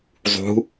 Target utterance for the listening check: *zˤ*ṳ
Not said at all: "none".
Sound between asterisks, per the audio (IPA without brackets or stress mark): zˤ